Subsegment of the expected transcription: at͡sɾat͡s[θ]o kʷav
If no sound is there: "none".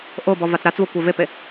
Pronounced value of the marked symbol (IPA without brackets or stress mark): v